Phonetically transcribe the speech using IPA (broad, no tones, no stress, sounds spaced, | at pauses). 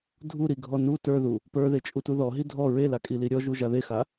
dʱ u ɾ i ɡʱ ɔ n u t ə˞ ð u | p ə˞ ð e t͡ʃʼ u t u ð ɔ ɦ i dʱ ɔ ɹ e l a kʼ i l i ɾʲ ɔ ʒ u ʒ a ð e x a